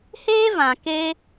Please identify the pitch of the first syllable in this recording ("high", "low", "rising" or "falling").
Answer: high